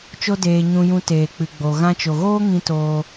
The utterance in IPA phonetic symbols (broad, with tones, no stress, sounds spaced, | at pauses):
t͡ʃ o˦ d eː˧ ɲ ũ˧ j ũ˧ t eː˨ k͡p ɨ˨ ɡ͡b o˨ ɣ ã˧ t͡ʃ o˨ ɣ oː˦ ŋ ĩ˧ t oː˧